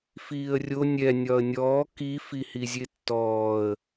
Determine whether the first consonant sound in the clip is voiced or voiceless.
voiceless